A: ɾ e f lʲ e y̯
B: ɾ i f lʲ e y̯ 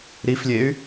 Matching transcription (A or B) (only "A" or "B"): B